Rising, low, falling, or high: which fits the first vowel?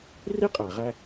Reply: high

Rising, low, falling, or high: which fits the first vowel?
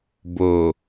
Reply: low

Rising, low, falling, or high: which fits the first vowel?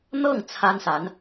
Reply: falling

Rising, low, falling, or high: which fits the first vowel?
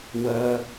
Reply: high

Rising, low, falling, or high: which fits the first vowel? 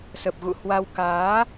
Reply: low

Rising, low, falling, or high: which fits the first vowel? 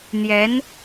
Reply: rising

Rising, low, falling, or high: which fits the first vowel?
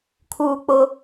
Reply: high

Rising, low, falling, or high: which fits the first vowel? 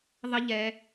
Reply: high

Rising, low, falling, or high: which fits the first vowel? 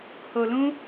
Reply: low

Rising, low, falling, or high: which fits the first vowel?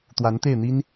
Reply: rising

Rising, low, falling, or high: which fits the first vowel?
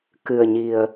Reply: low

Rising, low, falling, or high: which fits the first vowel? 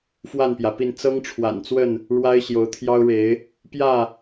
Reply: falling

